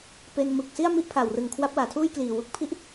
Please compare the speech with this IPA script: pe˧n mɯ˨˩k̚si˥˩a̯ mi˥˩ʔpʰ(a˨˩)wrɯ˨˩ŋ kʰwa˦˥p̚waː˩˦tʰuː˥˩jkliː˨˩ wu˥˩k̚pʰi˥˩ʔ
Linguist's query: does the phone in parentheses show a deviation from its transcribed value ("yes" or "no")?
no